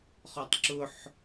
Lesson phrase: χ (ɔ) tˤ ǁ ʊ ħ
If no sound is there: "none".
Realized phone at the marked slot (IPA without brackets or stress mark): ɔ